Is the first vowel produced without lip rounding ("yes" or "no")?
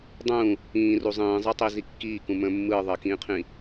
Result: no